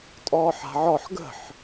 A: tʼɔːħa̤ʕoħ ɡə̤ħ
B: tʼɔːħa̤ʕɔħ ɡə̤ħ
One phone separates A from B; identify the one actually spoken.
B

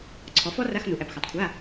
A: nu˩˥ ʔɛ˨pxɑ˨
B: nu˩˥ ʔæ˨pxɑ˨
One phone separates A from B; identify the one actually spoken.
B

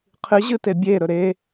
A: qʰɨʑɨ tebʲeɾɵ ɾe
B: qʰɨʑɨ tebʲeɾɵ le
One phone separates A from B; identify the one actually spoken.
A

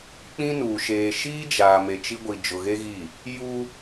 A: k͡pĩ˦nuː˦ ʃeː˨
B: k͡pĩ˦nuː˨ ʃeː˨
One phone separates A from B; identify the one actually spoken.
B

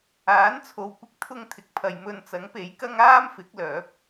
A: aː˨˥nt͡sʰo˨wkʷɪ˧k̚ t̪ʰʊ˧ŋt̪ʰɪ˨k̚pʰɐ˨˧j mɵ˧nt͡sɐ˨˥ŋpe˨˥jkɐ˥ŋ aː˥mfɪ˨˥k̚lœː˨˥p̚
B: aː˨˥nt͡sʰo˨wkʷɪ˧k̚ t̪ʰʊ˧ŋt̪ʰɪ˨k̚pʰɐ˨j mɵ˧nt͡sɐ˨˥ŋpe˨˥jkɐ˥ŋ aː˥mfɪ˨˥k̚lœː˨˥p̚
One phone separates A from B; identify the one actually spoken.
B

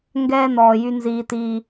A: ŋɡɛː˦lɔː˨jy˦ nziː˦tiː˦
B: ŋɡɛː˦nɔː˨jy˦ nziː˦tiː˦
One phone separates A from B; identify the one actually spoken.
B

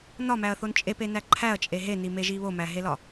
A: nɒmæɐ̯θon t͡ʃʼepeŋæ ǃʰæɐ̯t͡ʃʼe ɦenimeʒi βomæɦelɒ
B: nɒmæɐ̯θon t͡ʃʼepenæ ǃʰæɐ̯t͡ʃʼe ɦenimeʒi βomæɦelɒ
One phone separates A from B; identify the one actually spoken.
B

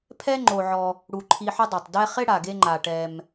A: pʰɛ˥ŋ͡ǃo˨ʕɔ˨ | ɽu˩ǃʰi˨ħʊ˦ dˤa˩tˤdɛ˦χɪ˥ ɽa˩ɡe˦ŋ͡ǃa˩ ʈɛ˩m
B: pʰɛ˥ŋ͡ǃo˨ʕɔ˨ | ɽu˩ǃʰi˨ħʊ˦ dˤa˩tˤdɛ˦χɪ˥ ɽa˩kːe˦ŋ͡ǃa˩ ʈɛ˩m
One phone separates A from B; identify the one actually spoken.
A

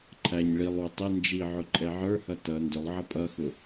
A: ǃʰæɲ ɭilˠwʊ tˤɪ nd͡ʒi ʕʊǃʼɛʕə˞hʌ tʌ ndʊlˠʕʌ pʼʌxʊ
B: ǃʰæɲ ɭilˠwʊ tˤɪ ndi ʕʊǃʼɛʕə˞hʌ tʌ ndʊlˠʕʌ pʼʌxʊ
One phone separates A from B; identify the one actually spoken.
A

